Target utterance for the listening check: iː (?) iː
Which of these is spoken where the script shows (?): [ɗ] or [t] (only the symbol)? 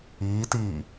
t